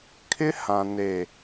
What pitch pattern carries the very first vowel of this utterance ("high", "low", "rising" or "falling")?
high